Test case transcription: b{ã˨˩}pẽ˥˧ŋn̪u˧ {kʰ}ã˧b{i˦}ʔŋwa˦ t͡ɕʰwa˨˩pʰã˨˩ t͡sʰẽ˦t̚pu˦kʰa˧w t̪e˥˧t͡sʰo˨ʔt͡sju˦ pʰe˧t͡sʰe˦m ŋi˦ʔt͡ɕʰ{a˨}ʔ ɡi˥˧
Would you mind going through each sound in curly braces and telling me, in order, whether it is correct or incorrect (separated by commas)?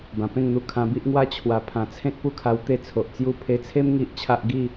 correct, correct, correct, incorrect